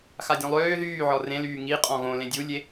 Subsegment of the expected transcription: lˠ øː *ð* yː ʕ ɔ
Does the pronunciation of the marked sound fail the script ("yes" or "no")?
no